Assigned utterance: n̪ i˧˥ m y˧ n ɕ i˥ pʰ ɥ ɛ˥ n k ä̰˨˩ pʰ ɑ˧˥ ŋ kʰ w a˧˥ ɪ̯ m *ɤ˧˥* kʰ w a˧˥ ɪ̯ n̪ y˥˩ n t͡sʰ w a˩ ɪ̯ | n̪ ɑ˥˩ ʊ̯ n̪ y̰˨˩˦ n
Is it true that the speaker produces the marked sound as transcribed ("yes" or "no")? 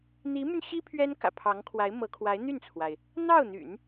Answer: yes